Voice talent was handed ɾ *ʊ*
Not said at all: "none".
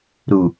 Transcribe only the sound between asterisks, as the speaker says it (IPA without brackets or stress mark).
u